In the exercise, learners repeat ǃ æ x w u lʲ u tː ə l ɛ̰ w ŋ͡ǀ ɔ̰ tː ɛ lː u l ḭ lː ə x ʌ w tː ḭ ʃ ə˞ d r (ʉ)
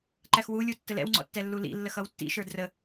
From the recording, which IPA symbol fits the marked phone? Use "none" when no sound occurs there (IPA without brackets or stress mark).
ə